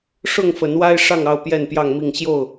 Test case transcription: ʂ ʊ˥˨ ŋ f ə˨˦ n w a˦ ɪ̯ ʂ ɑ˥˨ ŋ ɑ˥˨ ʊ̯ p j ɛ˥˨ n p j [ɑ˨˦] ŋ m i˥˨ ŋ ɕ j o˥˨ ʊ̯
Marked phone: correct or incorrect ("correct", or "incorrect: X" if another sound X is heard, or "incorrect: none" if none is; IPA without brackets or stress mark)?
incorrect: ɑ˥˨